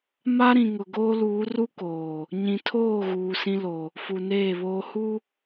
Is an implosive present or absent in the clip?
absent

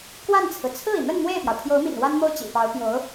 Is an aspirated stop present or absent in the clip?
present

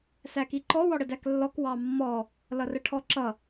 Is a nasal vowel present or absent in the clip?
absent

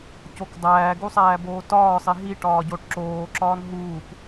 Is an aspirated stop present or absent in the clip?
absent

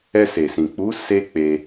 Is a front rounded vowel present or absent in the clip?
absent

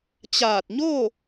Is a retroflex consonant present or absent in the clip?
absent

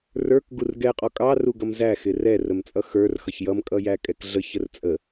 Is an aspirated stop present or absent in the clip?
absent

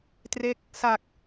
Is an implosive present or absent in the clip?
absent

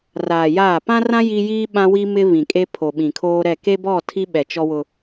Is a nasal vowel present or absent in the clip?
present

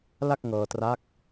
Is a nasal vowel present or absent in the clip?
absent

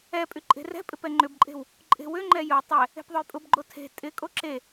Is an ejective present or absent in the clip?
present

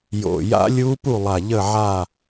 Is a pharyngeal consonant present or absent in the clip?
present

